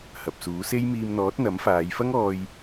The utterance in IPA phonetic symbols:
h ɐ˨ p̚ s uː˨˥ s e˥ j m iː˧ m n̪ ɔː˨˥ t̚ n̪ ɐ˨˥ m f aː˨˧ j f ɐ˥ ŋ ɔː˧ j

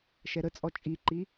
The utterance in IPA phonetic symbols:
ʃ ɛ ɾ ə t͡sʼ ɔ t͡ʃʼ i ǃ i

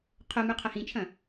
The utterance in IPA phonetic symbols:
qʰ o m ʉ qʰ ɐ h ĩ t͡ʃʰ ɐ̃

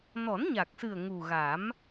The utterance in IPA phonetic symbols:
n ɔ˨˩˦ n ɲ a˨˩ k̚ s ɨ˨˩ ə̯ ŋ u˨˩ ɣ a˨˩˦ m

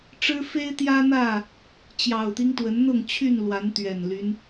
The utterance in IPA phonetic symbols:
ʈ͡ʂ ɻ̩˦ f e˦ ɪ̯ t̪ j ä˦ n̪ ä˥˨ | t͡ɕ j ɑ˨˩ ʊ̯ t̪ i˦ ŋ t̪ w ə˨˦ n n̪ ʊ˥˨ ŋ t͡ɕʰ y˥˨ n l w a˨˦ n t̪ ɥ ɛ˨˩ n l y˦ n

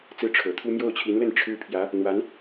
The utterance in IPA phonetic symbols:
t͡s ɹ̩˥˩ ʈ͡ʂʰ ɤ˨˩ t̪ʰ u˥ m j o˥˩ ʊ̯ t͡ɕʰ i˧˥ n l ə˥˩ n ʈ͡ʂʰ ɻ̩˥ pʰ j ä˧˥ | n̪ w a˧˥ n

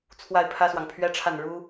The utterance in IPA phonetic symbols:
t͡sʰ w a˥˩ ɪ̯ pʰ ä˥ s w ɑ˨ ŋ pʰ ɥ ɛ˥ ʈ͡ʂʰ a˥˩ n ɻ u˥

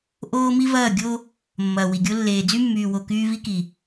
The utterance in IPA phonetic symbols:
ʔ oː˦ m i˦ v ɐː˦˨ ɡʲ o˦ | mː ɐː˨ w i˨ ɡʲ o˦ lː eː˨ d͡z y˦ mː yː˨ w o˨ k yː˦ v i˦ k i˨

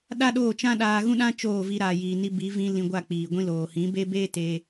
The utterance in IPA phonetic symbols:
ɗ a˦ ɗ oː˦˨ t͡ʃ ã˦ ɗ aː˧ ɣ ũ˦ ɗ ã˦ t͡ʃ oː˦˨ v i˧ ɾ aː˨ j iː˨ n i˧ b i˨˦ v ĩ˧ l ĩ˧ ɡʷ a˦˨ k͡p iː˨ ɡʷ ĩ˧ l oː˨ h ĩ˨˦ b e˦ b eː˦ t eː˧

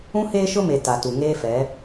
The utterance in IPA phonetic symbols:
ũ˦ h eː˦ ʃ ʊ˦ m e˨ t a˨ t u˨ ŋ eː˦ f ɛ˨˦

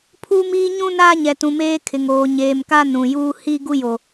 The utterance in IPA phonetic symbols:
pʰ uː˦ m iː˦ ɲ ũ˦ n aː˦ ɲ ɛ˨ t ũ˨ m eː˦ kʰ ɪ˨ ŋ oː˨ ɲ eː˨ m k a˦ n ũ˨ j uː˦ h i˦ ɡ u˦ j o˨

